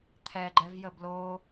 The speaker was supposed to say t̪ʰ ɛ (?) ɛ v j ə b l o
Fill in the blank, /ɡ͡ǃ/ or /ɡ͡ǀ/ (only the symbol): ɡ͡ǃ